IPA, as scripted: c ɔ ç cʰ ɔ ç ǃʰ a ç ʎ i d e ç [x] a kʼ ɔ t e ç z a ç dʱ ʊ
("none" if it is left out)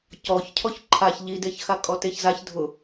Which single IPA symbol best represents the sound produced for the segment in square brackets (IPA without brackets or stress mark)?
x